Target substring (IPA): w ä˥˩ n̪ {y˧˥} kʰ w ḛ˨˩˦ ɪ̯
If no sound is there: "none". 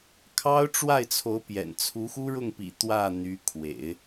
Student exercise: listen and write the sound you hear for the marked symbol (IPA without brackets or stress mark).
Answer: y˧˥